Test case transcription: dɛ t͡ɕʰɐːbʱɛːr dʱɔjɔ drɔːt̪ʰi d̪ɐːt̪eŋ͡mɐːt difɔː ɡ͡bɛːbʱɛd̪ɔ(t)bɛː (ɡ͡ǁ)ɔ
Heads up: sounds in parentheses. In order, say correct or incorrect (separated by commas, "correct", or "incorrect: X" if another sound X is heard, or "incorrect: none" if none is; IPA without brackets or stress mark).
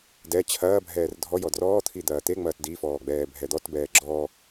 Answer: correct, correct